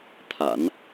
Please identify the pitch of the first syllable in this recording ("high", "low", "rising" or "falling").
low